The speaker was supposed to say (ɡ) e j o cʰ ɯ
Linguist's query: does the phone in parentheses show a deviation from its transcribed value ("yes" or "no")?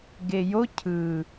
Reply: no